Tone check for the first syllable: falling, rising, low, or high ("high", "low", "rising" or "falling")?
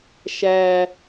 high